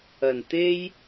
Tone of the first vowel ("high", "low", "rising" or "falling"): low